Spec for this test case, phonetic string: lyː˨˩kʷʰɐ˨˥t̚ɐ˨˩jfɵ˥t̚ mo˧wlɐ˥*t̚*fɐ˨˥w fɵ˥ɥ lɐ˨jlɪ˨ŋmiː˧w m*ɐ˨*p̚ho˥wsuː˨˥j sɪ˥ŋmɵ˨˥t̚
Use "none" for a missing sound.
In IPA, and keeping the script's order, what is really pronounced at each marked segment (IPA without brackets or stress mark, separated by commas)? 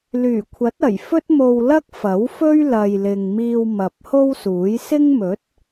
k̚, ɐ˨